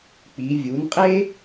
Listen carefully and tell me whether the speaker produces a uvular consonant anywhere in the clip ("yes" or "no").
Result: yes